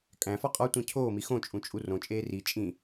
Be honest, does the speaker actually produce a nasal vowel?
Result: yes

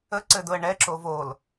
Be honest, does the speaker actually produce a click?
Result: yes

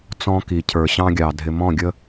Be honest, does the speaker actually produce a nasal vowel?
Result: yes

